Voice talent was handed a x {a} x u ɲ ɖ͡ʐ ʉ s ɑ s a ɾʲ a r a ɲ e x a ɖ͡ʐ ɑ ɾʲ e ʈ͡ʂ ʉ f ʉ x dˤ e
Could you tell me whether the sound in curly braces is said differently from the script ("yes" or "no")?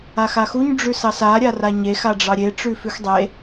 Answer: no